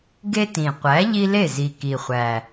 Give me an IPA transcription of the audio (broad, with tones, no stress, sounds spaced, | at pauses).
ɡ e˦ t ĩ˨˩ qʷ æ˨˥ ʎ i˦ l e˥˩ z i˨˩ k i˨˩ χʷ æ˨˩